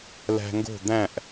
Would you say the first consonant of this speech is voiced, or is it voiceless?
voiced